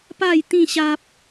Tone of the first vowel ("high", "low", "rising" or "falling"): falling